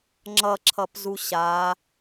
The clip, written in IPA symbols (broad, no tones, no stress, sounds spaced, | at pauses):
ŋ͡ǁ ʌ ǁʰ ʌ p z u ɕ a